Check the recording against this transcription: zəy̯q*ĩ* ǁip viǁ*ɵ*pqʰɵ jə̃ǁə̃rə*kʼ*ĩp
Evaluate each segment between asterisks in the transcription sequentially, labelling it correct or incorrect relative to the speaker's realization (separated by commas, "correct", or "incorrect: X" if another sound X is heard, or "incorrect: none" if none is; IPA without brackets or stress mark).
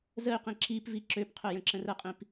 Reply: correct, incorrect: ø, incorrect: qʼ